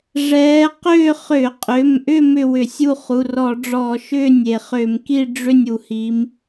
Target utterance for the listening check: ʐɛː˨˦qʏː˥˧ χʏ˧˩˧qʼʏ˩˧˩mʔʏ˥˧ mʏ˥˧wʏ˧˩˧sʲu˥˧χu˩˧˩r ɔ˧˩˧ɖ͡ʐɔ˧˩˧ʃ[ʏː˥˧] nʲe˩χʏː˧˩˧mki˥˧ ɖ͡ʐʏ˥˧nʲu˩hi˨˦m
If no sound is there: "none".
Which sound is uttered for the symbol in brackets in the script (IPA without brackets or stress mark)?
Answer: ʏː˥˧